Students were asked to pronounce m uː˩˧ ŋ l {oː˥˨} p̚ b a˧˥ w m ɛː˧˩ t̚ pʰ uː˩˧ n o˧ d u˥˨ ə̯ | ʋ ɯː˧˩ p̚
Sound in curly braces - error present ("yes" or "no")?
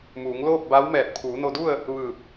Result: no